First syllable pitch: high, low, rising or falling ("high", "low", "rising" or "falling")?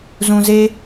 low